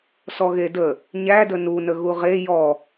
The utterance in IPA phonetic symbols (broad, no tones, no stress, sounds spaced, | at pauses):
s ɔ ɣ e d ə | ɲ æ d ə n u n ə ɣ u ʁ e j ɔ